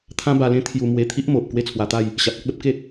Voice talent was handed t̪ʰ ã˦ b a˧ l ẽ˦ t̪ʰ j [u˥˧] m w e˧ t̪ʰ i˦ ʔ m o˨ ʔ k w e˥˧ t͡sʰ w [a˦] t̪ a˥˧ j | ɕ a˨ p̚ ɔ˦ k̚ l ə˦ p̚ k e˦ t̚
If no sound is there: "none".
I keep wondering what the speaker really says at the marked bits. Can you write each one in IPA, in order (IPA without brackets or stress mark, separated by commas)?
u˧, a˧